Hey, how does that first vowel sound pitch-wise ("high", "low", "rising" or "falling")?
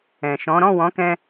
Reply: low